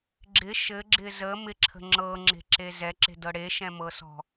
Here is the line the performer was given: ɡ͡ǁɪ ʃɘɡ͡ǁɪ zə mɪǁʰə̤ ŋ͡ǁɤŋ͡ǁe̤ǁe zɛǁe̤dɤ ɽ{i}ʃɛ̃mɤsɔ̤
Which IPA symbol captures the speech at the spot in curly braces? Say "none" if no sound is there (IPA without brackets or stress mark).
e